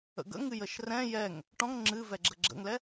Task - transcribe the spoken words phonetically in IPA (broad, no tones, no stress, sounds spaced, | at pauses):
ə̰ ɡ ə̰ ŋ ɨ j ə ʃ r ɛ̃ j ɛ ŋ | ʈ ɔ̃ ŋ ŋ͡ǁ ɨ v ɛ ɡ͡ǁ ə ɡ͡ǁ ə̰ ŋ l ɛ